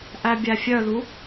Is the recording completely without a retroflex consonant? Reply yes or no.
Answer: yes